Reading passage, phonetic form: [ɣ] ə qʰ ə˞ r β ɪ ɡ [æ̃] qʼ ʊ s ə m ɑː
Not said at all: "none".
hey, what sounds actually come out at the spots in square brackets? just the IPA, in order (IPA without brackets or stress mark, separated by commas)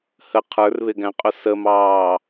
h, æ̃